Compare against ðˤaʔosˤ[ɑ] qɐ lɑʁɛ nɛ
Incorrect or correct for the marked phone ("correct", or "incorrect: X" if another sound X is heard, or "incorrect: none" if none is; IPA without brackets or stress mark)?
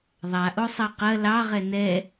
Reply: correct